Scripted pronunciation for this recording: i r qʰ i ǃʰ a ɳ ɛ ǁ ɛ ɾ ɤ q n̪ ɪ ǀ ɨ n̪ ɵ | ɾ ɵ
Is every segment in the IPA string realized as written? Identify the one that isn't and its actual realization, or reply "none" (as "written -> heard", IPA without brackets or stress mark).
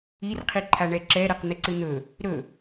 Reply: none